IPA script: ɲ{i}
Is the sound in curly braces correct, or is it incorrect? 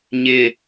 incorrect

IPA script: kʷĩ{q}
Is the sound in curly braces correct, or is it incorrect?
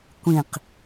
correct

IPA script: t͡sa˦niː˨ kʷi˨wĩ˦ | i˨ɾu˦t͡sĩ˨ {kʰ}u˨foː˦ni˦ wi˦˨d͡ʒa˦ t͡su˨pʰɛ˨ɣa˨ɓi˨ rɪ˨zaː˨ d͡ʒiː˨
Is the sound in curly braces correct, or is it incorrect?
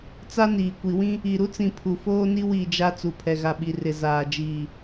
incorrect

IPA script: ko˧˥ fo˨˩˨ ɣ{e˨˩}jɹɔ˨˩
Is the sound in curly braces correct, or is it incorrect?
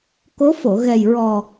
incorrect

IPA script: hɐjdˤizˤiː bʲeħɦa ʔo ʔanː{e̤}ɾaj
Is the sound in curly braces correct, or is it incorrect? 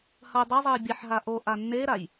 incorrect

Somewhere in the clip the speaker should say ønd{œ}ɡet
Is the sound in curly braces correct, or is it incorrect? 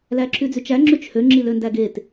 incorrect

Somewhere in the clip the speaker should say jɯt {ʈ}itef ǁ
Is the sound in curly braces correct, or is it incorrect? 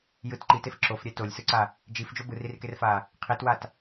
incorrect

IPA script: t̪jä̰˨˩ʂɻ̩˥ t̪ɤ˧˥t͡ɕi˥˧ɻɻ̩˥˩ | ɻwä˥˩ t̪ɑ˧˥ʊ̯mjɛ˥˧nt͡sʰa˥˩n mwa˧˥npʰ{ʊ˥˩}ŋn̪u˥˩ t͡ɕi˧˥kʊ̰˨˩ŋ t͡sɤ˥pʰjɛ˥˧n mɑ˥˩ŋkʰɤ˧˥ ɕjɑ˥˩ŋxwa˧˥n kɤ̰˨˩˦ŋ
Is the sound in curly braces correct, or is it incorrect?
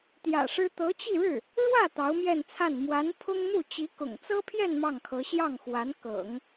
incorrect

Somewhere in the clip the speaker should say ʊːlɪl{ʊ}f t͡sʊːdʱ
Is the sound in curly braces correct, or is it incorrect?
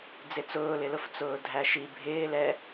correct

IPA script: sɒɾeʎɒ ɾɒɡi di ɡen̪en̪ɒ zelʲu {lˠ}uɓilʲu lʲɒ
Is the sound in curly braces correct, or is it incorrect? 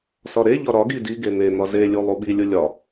correct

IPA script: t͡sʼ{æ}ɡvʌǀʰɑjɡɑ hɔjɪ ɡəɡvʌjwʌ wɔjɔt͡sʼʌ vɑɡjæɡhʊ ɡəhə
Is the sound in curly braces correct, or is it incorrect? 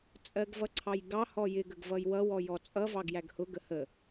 incorrect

